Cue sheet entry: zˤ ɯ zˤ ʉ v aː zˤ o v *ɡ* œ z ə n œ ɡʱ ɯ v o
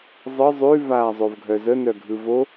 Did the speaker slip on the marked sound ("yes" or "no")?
yes